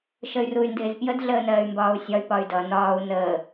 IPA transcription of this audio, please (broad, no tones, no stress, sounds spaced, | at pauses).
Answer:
ʃ ə y̯ r u y̯ n d ɪː z p j ə d ɮ əː n ɜː y̯ m b ɒː u̯ sʲ ɒ y̯ p ɒ y̯ d ʌ n ɒː u̯ n əː